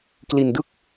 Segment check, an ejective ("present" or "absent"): absent